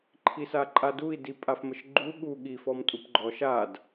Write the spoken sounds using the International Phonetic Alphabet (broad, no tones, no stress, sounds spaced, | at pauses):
ǃʰ i s a ǃʼ a d u i̯ d i pʼ a f m ə ʃ ɡ͡ǃ u ɠ u ɠ i f ɔ m tʼ u p ɡ͡ǃ ɔ ʃ a d